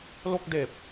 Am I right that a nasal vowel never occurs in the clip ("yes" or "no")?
yes